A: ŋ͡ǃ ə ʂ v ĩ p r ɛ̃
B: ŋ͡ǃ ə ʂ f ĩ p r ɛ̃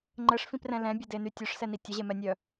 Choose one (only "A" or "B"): B